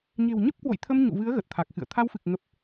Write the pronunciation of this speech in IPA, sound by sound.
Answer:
ɲ e̤˨˩ w ɲ ə˦˥ p̚ k w o̰˧˨ j t̪ʰ ə˧ m ɲ ṵ˧˨ v ɨ˨˦ ə̯ ɣ ə˨˩ t̚ t̪ʰ a˨˩ k̚ x ɨ̰˧˨ ə̯ t̪ʰ a˧ w f ɨ˨˩ k̚ ŋ ə˨˩ p̚

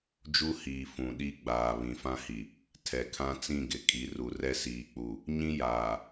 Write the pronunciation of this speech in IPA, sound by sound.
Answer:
d͡ʒ u˦ h iː˨ f ũ˨ ɗ i˦ ɡ͡b aː˨ β ĩ˨ f ã˦ h i˨ | tʰ ɛ˨ kʰ ã˦ t͡s ĩ˦˨ ɡ ɪ˨ kʼ i˨˦ r u˨ r ɛ˦ s iː˨ k͡p u˨ | ɲ ĩ˦ j aː˨

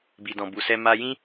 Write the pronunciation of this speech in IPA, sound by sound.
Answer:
b i˨ d ɔ̃˨ b u˨ s ɛ˧ m a˧ j ĩ˦

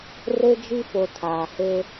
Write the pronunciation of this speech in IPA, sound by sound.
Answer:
r e˦ d͡ʒ i˦ f o˨ tʰ aː˨ h e˦

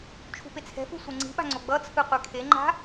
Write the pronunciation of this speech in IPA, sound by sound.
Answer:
t͡ʃʰ ṳ p e t͡sʰ ɛ̤ f ɯ sʷ e ŋ͡ǀ i̤ ɓ a̤ ŋ͡ǀ o ɡ͡b ʌ t͡sʰ ɯ qʷ e kʰ e ŋ͡ǃ a̤

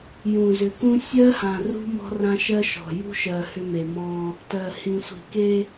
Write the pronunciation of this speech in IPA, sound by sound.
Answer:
j ũ˨ z ʏ˨ k ũ˦ sʲ ɜ˦ h ã˨ r ṳ˦ m ɔ̤˦ r ã˦ ʃ ɜ˦ ʃ ɔ̤˨ j ṳ˦ ʃ ɜ˨ h ʏ˦ m e˨ m ɔ̃˦ | t ɜ˨ h ĩ˨ sʷ i̤˨ k e˦

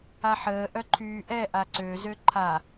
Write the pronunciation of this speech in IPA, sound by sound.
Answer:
a ħ əː ʔ œ ǃʰ yː ʔ ɛ ʔ a ǀ ø z ø ǃʰ a

